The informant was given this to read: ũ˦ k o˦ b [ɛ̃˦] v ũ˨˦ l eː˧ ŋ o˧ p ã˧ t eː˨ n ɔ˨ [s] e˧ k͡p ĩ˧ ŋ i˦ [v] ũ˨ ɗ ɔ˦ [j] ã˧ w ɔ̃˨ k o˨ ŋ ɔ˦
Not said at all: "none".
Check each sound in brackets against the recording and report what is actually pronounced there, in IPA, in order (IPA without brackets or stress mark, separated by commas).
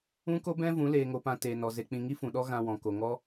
ɛ̃˦, z, f, ɣ